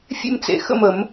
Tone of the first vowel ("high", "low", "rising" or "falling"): falling